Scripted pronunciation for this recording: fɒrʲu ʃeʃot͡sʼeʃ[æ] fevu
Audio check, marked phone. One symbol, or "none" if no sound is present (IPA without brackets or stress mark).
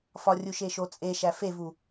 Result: æ